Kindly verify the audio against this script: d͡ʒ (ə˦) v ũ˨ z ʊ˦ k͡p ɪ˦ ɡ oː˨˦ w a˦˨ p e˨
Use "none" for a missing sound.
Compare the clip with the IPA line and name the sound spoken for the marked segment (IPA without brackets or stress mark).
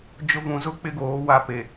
ʊ˦